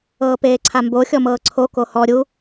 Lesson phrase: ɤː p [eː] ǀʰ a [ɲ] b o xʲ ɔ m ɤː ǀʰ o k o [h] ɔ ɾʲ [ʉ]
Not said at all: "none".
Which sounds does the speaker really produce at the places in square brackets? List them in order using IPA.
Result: eː, m, h, u

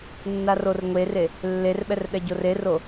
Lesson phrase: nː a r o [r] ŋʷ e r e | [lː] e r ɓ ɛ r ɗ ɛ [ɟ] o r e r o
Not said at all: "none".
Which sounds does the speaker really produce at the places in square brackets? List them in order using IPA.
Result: r, lː, ɟ

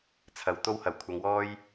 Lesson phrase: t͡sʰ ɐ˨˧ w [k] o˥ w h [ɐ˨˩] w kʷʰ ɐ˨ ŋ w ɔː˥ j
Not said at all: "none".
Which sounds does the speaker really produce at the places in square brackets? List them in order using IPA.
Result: t̪, ɐ˨˩

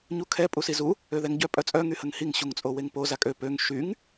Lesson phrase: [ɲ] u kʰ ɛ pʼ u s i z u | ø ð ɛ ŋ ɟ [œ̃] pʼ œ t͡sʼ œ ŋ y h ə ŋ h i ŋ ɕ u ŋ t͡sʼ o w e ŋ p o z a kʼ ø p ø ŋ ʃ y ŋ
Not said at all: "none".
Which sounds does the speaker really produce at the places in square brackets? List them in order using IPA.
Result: ɲ, œ

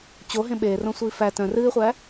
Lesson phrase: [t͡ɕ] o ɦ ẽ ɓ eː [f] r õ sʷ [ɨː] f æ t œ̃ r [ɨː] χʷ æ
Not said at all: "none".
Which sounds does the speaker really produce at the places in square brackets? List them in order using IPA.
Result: t͡ɕ, none, iː, ɨː

